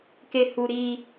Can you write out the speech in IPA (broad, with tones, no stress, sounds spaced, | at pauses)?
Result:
k e˦ h u˦ ɾ iː˦